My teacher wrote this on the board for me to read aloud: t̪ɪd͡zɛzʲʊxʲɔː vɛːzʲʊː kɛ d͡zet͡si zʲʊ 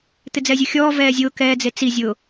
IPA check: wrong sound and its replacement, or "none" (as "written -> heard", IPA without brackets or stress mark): none